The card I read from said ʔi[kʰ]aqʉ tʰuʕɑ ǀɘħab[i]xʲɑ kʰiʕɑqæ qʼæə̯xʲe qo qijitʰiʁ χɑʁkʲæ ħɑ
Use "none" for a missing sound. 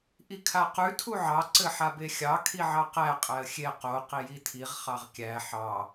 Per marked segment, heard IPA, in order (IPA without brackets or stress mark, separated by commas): kʰ, e